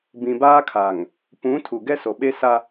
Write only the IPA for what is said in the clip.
bĩ˨baː˦kʰa˨ŋ | pũ˨˦ tʰu˨ɡɛ˦so˨ɓe˦ sa˦

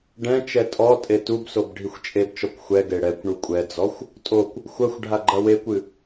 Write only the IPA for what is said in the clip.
ɖɛ̃ t͡ʃɛtʼɔtʼe tubsob ɖʱixʷt͡ʃʼebt͡ʃɔkʷ xʷɛɡe ɽɛkʷ ɳukʷʼɛd͡zɔxʷ | tʼokʷ | xʷɐxʷ ɖʱaɡ͡ǃɐwekʷɨ

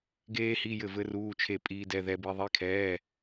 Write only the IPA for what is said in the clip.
ɡeː˦˥hi˧˥˧ jɘ˥˩vɘ˦˥ruː˧˥˧t͡ʃʰe˥˩ pʼiː˦˥dɛ˧˥˧ðɛ˦˥bi˦˥ ðˤi˧˥˧kʰɛː˧˥˧

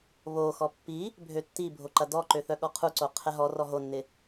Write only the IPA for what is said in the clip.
βoxɔ pːi | bʱøtːibʱo ǃɐdɔǃø θœɠɔqʰuǀo qʰɛɦɔrɔ ɦonːɪ

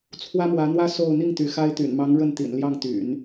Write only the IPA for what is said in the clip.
t͡sʰwä˥mwä˧˥n̪wä˥ so˥˧ʊ̯ n̪i˥˩ŋ t̪y˧˥xa˥ɪ̯ t̪y̰˨˩nmɑ˧˥ŋ ɻə˥˩nt̪ḭ˨˩n ljɑ˥˩ŋt̪y̰˨˩˦n

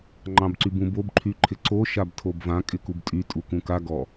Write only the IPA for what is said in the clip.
ŋ͡ǃɑ̃bǀybũbob ǃʰyǃʰɪǀo ʃabtʰobvã kʼɪkubtʼy tʼukũka ɡɔ

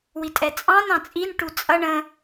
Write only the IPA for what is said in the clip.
witʼɛt͡sʼɑ̃n ɑ̃t͡sʼin ʈut͡sʼʌ ɳə̃

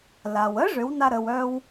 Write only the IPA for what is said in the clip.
la˩wə˧˥ʐʏ˩˧w na˧ɾə˩w œ˧w

